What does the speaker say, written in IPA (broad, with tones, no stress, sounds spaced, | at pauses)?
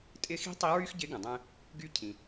tʼ ɪ˧ x i̤˧˥ tˤ i˧˥ ɹ y˥ x ɟ ɪ˧˥ ɡ ə̃˩ dˤ ɛ̃˧ | ɡ y˧ cʰ ĩ˩